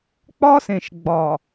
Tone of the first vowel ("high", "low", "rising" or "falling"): high